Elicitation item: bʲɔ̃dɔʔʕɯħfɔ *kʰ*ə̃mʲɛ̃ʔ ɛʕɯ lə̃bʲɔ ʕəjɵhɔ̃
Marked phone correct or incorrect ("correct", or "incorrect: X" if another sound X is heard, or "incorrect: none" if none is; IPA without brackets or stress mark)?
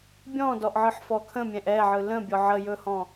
correct